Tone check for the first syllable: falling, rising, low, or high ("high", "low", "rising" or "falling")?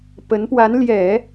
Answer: rising